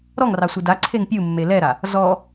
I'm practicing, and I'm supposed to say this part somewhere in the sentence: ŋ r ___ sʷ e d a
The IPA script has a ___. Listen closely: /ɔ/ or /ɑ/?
ɑ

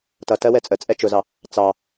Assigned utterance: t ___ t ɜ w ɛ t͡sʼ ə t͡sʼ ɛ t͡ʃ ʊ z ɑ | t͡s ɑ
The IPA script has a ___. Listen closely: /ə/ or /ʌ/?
ʌ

